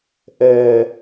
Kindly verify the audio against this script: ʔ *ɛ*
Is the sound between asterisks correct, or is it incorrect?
correct